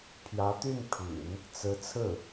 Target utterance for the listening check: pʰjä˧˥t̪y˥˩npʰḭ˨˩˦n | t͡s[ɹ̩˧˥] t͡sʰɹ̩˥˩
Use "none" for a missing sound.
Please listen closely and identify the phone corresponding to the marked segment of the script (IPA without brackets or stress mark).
ɹ̩˧˥